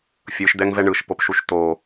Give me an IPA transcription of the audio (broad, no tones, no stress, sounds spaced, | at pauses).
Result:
fʲ ɯ ʃ d̪ ɛ ŋ v ɛ ɳ ɯ ʃ p o p ʃ u ʃ t̪ o